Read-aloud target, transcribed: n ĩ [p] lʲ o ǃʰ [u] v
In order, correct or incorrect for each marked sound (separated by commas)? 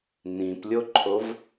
correct, incorrect